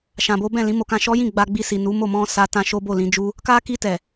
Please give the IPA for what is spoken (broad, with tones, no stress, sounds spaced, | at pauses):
ʃ ã˧ b o˦ b ɛ̃˦˨ l ĩ˨˦ m o˧ k ã˧ ʃ ɔ˦ j ĩ˦˨ ɡ͡b a˧ ɡ͡b i˧ s i˨ n u˨˦ m o˦˨ m ɔ̃˧ s a˦ t ã˧ ʃ o˦ b o˦˨ l ĩ˨˦ d͡ʒ u˦ | k a˦ k i˧ t ɛ˨